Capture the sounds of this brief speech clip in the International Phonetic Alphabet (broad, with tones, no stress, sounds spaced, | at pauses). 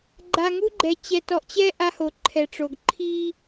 ɡ͡ǃ a˨ ŋ u˦ ɡ͡ǃ ɛ˨ t͡ɕ ɛ˨ t ɔ˨ ʔ t͡ɕ ɛ˦ ʔ a˦ h o˨ ǃʰ ɛ˨ ʈ͡ʂ o˨ ɡ ǃʰ i˦